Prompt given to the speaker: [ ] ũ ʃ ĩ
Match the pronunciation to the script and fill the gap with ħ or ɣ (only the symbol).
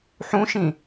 ħ